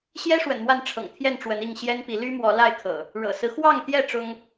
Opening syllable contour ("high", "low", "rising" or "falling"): high